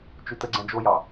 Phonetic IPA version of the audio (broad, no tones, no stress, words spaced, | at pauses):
t͡ʃʉtəɡ͡ǀɛ̃ d͡ʒojɑ